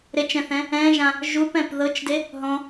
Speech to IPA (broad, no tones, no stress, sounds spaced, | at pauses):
ɾ e t͡ʃ ɛ̃ θ ɛ̃ | ɛ̃ ʒ ã | ʒ u p ɛ̃ p ð ɤ t͡ʃ d e | ɦ ɔ̃